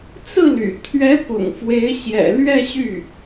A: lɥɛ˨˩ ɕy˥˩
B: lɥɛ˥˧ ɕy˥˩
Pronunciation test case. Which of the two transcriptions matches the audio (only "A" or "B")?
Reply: B